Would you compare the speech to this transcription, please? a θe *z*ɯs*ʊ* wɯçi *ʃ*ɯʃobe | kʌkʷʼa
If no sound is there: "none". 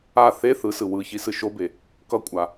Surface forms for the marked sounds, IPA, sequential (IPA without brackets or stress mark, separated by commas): θ, ɯ, s